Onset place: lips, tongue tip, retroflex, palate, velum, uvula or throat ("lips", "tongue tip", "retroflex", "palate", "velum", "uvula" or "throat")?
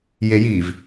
palate